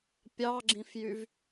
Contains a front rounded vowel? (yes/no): yes